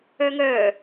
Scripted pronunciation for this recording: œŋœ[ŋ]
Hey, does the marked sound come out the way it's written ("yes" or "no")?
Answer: no